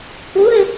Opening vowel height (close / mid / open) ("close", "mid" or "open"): close